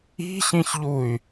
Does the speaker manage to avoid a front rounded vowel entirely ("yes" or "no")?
no